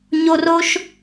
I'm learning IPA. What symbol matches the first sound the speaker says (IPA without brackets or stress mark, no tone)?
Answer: ɲ